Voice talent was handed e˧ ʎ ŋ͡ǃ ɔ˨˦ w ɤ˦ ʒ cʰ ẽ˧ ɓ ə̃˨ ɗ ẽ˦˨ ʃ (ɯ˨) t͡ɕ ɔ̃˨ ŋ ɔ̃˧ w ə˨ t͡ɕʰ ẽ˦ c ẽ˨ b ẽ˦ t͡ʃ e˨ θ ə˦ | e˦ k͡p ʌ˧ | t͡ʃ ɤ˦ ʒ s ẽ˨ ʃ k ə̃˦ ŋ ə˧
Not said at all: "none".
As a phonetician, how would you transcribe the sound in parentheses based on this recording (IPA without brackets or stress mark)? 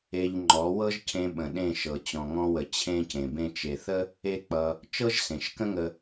ɤ˨